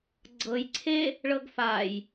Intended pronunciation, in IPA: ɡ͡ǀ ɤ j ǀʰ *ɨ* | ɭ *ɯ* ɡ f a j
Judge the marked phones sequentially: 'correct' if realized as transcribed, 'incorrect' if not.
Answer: incorrect: e, incorrect: ɤ

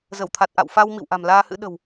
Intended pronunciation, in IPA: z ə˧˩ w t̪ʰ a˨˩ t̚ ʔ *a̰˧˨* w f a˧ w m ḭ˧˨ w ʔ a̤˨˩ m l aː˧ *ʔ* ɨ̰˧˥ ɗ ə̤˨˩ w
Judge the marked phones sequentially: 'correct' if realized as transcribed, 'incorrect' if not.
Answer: correct, incorrect: h

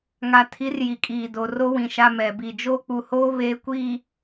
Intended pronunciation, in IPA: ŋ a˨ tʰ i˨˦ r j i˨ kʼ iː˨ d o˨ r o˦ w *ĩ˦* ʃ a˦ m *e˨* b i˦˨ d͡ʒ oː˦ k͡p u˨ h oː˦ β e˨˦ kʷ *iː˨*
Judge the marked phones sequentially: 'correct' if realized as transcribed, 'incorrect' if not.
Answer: incorrect: ĩ˨, incorrect: ɛ˨, correct

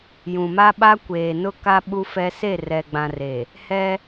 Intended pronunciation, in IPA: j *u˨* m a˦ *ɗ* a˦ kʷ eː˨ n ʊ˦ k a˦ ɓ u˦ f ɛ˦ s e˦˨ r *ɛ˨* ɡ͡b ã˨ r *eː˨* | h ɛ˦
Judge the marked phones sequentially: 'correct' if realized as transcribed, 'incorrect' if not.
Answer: incorrect: ũ˨, incorrect: ɓ, correct, incorrect: e˨

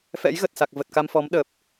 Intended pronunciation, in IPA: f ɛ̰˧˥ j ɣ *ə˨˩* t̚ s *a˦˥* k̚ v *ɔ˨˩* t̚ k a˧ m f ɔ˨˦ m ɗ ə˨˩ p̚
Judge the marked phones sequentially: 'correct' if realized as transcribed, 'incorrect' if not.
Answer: correct, incorrect: a˨˩, incorrect: ə˨˩

